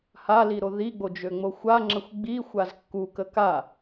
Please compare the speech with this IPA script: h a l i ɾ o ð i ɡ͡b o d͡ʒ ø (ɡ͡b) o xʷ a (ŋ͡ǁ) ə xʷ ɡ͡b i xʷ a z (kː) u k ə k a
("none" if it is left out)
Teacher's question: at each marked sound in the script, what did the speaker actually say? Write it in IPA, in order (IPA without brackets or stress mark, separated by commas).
ŋ͡m, ŋ͡ǁ, kː